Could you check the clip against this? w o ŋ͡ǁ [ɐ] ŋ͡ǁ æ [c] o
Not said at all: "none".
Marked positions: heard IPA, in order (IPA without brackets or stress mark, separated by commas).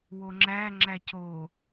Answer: æ, c